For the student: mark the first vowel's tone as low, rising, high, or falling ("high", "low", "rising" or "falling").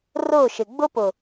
falling